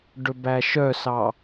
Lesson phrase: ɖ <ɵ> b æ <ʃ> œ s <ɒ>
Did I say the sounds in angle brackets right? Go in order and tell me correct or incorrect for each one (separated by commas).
correct, correct, incorrect